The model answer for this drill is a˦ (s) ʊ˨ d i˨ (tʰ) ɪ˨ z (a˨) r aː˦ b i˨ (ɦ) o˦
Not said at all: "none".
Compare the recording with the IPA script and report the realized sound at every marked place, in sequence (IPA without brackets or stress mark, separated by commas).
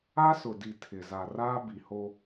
s, tʰ, a˨, h